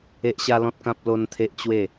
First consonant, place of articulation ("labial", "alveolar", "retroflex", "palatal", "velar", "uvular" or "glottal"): glottal